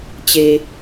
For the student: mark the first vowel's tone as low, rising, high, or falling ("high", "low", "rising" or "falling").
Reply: low